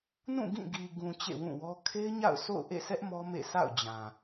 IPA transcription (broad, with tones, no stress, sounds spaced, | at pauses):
n ũ˦˨ ɡ ĩ˦˨ ɡ i˨ ɡ ũ˨ t͡ɕ ḛ˦˨ w ũ˦˨ w ɔ˦ kʰ e˦ ɪ̯ ɲ a̰˦˨ ʊ̯ s o̰˦˨ ʊ̯ ʔ ḛ˦˨ sʰ ɛ˦ ʔ m ɔ˦ m ḛ˦˨ s a̰˦˨ ʊ̯ d͡ʑ ã˨